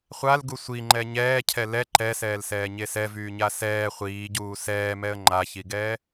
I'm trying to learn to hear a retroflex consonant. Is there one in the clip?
no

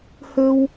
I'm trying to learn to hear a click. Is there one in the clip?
no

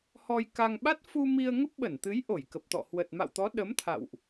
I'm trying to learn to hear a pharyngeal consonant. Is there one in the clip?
no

